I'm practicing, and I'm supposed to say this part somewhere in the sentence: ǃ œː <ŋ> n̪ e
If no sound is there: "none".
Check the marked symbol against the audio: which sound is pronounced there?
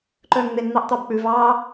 ŋ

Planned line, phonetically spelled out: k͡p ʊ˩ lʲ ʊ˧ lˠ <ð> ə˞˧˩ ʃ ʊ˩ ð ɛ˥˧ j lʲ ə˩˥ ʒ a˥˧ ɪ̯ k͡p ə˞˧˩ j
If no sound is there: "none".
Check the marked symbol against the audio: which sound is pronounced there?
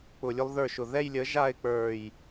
ð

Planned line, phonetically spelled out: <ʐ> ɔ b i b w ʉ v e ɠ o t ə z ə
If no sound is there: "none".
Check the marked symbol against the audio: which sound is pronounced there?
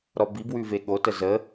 ɾ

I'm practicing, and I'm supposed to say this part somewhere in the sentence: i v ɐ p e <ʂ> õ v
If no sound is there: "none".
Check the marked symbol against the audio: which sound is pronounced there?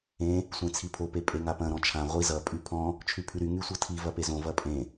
z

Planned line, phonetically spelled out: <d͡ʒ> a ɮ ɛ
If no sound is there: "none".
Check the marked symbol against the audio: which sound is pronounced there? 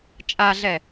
t͡ʃʼ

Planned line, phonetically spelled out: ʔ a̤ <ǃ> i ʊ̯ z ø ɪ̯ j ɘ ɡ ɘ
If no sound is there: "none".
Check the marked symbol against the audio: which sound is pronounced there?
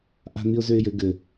n̪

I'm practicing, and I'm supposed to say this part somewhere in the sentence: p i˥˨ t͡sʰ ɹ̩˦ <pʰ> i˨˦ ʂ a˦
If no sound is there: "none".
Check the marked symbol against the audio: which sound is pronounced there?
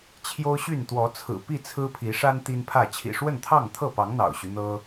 pʰ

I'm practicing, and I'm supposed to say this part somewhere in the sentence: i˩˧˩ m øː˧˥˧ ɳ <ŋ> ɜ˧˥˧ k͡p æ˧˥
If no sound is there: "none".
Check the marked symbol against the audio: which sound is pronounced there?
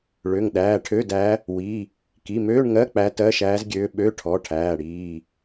ŋ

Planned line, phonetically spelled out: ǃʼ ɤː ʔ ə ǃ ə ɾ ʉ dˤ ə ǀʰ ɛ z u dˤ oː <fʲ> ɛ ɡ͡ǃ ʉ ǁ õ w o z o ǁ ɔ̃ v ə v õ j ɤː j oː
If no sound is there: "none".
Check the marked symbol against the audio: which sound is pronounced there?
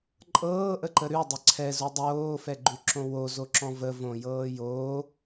f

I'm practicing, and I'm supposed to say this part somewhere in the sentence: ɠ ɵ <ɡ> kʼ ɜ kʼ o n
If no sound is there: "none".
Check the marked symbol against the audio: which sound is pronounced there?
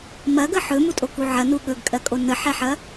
ɡ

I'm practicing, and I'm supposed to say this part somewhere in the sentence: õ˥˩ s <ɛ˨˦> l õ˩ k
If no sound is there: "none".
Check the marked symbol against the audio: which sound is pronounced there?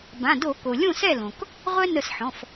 ɛ˥˩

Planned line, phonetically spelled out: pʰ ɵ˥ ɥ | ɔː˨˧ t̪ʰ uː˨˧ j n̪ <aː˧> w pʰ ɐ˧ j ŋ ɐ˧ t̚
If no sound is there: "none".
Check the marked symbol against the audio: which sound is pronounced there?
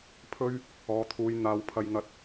aː˨˧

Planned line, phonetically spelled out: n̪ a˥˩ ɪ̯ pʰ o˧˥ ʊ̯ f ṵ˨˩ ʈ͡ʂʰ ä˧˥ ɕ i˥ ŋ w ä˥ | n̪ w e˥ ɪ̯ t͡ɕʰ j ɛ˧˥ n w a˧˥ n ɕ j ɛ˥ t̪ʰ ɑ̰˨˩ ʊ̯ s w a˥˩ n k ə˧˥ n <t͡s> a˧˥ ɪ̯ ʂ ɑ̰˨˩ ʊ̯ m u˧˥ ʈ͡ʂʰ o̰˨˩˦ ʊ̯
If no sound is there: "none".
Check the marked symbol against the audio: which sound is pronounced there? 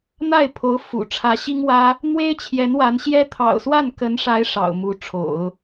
ʂ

